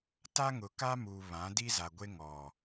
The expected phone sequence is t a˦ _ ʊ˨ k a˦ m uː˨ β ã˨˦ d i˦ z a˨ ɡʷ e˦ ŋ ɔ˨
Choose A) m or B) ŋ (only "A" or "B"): B